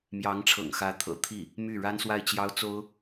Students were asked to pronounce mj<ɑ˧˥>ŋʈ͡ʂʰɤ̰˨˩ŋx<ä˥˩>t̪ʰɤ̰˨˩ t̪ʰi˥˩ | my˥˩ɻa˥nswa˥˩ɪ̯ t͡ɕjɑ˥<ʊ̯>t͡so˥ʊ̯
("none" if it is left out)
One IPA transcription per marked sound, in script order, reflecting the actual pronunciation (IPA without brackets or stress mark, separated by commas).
ɑ˧˥, ä˧˥, ʊ̯